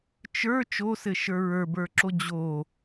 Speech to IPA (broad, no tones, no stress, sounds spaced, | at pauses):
t͡ʃ ə˞ t͡ʃ o s ɘ ʃ ə˞ ɹ ə˞ b ə˞ ǁ o d͡ʑ o